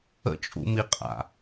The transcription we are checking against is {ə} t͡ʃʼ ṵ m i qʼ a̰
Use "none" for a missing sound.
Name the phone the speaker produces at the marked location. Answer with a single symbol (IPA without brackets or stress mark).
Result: ə̰